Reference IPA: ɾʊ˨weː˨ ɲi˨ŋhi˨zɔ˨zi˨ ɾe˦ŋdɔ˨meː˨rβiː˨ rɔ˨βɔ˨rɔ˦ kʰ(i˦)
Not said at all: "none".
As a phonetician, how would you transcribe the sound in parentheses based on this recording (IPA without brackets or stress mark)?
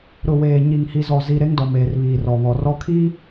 i˦